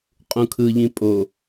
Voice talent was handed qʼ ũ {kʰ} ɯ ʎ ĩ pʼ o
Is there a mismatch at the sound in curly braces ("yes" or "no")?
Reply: no